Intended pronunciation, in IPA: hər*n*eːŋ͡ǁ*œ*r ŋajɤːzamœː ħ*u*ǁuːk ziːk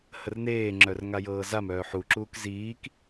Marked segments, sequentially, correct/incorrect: correct, correct, correct

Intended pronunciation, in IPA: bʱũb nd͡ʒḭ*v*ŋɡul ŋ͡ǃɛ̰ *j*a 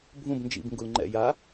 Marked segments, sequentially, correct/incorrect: incorrect, correct

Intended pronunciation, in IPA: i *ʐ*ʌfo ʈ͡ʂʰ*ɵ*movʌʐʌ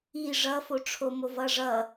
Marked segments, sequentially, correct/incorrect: correct, incorrect

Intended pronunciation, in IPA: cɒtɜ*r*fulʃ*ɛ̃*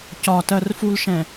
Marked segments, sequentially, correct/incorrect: correct, correct

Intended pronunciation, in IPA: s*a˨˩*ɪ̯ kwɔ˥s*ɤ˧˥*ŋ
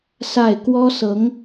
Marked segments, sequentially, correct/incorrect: incorrect, correct

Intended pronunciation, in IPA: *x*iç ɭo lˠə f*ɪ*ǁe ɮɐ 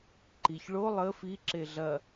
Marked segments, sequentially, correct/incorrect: incorrect, incorrect

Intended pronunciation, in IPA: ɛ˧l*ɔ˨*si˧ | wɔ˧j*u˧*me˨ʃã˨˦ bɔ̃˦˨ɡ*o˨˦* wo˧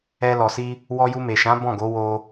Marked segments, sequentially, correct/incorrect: correct, correct, correct

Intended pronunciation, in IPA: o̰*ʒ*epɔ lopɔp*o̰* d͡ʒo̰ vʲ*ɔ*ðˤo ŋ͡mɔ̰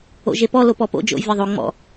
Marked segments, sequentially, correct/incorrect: correct, correct, correct

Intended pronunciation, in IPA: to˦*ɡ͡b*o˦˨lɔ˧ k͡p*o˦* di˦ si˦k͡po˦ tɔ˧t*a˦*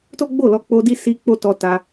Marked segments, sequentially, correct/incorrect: correct, correct, incorrect

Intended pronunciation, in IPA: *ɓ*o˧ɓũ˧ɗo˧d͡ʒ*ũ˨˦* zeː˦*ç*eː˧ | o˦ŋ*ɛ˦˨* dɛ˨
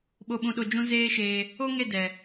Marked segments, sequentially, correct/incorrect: correct, incorrect, incorrect, incorrect

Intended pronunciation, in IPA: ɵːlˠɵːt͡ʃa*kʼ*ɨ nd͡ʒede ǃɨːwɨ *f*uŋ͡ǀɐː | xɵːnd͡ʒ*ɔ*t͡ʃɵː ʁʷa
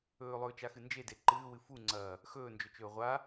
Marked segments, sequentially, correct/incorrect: incorrect, correct, incorrect

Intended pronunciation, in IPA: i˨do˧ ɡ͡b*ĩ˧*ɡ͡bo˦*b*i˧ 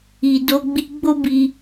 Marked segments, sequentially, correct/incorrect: incorrect, correct

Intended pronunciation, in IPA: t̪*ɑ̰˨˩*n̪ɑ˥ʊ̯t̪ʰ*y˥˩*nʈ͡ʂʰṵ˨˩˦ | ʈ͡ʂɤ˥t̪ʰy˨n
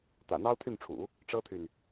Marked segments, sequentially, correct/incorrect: incorrect, correct

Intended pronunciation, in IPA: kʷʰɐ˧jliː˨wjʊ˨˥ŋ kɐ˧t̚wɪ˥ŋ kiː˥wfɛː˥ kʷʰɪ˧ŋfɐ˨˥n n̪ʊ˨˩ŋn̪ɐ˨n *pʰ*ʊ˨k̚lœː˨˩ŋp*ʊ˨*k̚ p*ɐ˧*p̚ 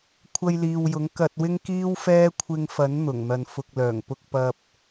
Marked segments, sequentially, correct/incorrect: incorrect, incorrect, correct

